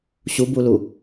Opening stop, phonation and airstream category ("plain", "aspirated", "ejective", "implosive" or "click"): plain